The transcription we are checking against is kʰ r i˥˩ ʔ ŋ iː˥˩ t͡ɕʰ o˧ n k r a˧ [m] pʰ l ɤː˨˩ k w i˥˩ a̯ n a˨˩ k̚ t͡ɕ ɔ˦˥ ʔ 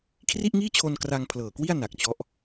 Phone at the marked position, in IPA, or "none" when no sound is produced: ŋ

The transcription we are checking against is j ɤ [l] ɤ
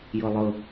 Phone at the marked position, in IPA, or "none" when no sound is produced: lˠ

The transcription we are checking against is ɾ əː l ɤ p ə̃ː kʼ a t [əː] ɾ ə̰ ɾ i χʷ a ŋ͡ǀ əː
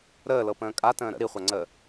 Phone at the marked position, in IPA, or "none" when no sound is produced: ə̃ː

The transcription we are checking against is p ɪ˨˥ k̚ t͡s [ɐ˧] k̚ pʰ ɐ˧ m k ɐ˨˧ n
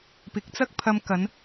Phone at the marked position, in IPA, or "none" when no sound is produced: ɐ˥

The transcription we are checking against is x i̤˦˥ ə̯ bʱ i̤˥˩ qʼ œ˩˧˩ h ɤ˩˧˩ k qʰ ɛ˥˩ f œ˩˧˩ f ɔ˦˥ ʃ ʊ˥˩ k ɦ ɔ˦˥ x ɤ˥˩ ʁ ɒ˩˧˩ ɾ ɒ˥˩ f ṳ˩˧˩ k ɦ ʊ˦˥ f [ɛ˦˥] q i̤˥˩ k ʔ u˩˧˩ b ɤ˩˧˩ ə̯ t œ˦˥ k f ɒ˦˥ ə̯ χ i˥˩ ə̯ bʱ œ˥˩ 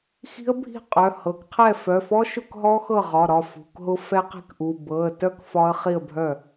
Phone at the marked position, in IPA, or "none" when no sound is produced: ɛ˦˥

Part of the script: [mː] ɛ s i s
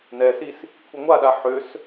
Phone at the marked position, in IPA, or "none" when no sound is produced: n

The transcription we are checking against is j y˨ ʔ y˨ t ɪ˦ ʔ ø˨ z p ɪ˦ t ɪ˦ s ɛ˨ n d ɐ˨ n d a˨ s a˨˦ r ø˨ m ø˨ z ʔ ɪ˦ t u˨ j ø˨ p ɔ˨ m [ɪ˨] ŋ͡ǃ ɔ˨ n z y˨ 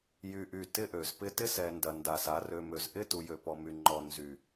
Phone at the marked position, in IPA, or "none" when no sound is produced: y˨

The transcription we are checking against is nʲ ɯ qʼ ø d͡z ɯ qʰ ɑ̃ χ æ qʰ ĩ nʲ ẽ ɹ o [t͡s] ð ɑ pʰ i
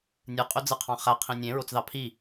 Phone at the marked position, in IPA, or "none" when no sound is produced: t͡s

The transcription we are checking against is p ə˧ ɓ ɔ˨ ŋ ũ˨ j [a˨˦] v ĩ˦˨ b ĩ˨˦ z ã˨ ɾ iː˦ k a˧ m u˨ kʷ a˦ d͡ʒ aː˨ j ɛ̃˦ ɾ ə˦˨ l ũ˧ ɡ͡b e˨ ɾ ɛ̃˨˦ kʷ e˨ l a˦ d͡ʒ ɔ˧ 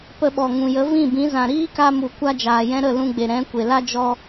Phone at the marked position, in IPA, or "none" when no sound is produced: ə˨˦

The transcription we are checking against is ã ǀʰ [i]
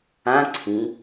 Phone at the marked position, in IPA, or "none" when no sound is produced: ĩ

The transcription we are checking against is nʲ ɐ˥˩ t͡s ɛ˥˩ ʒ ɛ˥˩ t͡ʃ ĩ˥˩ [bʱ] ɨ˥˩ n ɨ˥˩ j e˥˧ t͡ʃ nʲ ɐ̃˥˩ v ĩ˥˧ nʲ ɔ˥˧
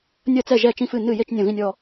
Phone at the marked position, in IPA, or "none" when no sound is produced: f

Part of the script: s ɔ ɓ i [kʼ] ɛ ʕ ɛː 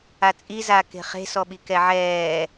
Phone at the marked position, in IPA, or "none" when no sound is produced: k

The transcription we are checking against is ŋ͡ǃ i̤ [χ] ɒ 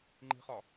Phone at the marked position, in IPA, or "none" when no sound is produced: χ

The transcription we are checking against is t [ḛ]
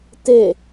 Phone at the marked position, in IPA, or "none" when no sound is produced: e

